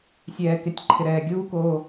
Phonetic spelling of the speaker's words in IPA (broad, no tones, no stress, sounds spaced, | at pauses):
sʲ ɛː k ɪ tʲ ǃʰ ɪ ɾ ɛː ɡʲ uː k oː